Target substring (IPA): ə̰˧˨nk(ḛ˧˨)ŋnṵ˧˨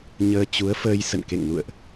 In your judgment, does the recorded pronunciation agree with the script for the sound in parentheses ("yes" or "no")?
yes